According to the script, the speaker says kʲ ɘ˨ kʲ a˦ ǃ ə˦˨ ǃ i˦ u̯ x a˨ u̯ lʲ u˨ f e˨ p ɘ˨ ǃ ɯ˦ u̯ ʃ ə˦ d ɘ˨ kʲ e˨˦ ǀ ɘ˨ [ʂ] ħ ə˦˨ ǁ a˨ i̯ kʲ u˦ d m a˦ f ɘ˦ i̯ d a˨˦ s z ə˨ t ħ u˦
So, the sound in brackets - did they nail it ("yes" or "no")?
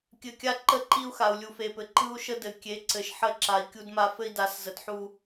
no